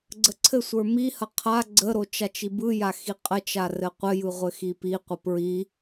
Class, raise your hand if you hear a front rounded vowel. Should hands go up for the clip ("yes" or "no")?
no